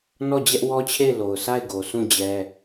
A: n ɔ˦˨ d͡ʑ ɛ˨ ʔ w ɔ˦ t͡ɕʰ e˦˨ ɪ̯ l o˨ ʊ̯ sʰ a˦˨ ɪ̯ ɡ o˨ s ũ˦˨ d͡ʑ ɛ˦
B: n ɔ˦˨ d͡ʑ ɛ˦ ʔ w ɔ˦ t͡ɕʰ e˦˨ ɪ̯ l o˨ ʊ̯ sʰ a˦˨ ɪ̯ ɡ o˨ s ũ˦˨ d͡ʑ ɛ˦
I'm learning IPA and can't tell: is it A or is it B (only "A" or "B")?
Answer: B